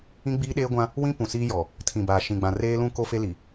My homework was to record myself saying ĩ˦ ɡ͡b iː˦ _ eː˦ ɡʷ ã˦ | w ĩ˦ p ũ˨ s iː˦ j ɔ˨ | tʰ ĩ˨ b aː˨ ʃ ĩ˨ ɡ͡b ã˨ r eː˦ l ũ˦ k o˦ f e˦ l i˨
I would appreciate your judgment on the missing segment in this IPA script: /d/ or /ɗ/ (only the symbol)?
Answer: ɗ